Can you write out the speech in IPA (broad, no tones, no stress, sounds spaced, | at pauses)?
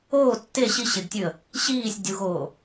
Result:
oː tː e ɕ i ɕ e ɡ tʲ ʉ ə̯ | ɕ iː sʲ dʲ u ɣ oː